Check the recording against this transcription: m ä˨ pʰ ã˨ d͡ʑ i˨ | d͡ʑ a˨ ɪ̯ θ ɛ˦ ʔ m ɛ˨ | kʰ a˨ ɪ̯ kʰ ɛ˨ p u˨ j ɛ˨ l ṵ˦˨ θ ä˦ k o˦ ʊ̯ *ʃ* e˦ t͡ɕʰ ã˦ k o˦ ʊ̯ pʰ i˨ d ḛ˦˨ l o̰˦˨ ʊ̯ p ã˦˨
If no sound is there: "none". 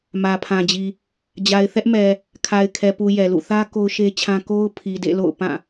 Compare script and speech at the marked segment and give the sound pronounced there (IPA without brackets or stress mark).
ʃ